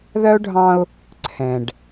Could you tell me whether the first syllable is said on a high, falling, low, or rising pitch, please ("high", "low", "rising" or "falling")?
high